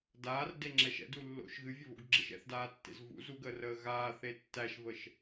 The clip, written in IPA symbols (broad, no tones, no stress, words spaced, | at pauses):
daːrdeŋ͡ǁɛʃ ɛ̰dulːo̰ʃ ɣɨvʲəβo̰ɡɡ͡ǁəʃ ɛ̰θdaːtːḛz vṵz uɡəːrəː ɣaːθe tːæʃvəʃ